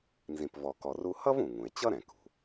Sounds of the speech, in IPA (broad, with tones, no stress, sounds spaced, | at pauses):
n z ĩ˨ p v ɔ˨ k ɔ˨ r u˦ h ʌ˥ v ũ˩ ŋ ũ˩ e̯ t͡ɕ ʌ˥ ɾ ɛ̃˩ k ṳ˩